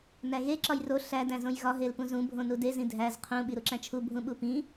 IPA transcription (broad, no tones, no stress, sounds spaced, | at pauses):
n æ ɣ e ǁ ɒ j r o ɬ æ d æ̃ z õ j ɣ ɒ ɦ e l p ũ z ũ bʱ õ n u d e z ĩ dʱ æ z qʰ ũ ɓ i ɾ u ǁ æ̃ t͡ʃʰ u bʱ ũ ɓ u p ĩ